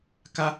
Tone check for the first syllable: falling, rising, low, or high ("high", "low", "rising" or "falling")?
low